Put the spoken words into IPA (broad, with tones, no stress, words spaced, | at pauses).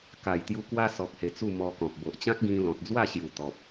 ka˨˩jt̪ju˧ kwa˦ sɔ˨k̚he˨˩ t͡su˥˧mɔ˧kɔ̃˨p̚ bo˨ʔt͡ɕã˦k̚ɡĩ˧ lɔ̃˨t̚d͡zwa˥˧ ɕju˨˩t̪ɔ˨p̚